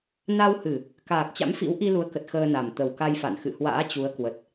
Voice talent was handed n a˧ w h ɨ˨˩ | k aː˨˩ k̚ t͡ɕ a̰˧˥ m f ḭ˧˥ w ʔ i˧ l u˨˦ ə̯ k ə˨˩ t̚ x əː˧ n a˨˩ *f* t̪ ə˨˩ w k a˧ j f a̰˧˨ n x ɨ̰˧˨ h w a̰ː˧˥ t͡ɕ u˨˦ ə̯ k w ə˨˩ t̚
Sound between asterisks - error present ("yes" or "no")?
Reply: yes